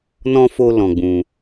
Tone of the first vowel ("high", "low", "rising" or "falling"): high